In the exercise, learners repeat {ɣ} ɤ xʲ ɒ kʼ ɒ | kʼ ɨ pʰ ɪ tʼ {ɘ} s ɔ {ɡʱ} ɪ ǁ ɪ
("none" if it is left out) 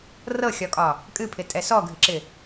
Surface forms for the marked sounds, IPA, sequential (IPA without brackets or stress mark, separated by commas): r, ɛ, ɡʱ